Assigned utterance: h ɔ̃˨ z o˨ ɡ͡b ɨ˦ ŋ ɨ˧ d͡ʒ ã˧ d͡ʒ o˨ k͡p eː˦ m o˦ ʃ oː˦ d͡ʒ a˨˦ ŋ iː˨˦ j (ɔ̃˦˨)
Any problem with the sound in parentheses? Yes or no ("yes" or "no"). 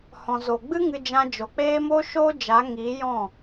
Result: no